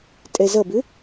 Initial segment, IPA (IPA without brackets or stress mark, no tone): tʼ